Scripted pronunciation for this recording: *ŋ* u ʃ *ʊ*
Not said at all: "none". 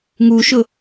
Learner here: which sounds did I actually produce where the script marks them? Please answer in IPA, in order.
ŋ, ʊ

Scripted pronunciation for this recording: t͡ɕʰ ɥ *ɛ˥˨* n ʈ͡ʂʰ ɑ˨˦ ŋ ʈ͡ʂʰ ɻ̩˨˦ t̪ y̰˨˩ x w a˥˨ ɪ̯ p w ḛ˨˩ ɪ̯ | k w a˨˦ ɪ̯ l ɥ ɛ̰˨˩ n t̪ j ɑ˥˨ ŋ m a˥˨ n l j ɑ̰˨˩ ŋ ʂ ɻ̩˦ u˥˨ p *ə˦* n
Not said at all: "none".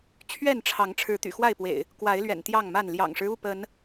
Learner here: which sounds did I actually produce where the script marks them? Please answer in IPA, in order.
ɛ˥˨, ə˨˦

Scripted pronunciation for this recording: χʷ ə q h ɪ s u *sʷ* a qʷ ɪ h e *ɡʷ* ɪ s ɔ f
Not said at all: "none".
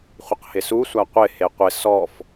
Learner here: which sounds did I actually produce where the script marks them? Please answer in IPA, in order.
sʷ, qʷ

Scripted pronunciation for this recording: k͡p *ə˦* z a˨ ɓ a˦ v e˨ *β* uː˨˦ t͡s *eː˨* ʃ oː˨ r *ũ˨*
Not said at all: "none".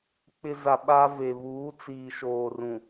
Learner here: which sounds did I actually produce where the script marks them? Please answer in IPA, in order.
ɪ˦, β, iː˨, ũ˨

